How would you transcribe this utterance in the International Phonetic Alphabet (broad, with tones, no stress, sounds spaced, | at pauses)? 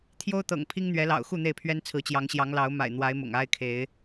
t̪ʰ j o˦ ʊ̯ t̪ ɤ̰˨˩ ŋ pʰ i˦ ŋ n̪ ɥ ɛ˨˦ l ɑ̰˨˩ ʊ̯ x u˥˨ n̪ e˥˨ ɪ̯ pʰ ɥ ɛ˦ n t͡sʰ ɹ̩˨˦ t͡ɕ j ɑ˨˦ ŋ ɕ j ɑ˨˦ ŋ l ɑ˨˦ ʊ̯ m a̰˨˩ ɪ̯ n̪ w a˨˦ ɪ̯ m ʊ̰˨˩ ŋ a˦ ɪ̯ kʰ e˨˦ ɪ̯